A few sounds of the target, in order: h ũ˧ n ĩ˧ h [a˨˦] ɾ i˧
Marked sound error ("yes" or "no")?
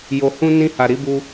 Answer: yes